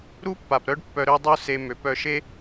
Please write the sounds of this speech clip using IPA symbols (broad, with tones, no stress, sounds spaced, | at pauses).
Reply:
ɾ u˦ pː a˨ p ɾ œ˦ ɖ pː œ˧ ɾ ø˦ dˤ u˦ s e˧ m ø˨˦ p œ˧ ʃ e˦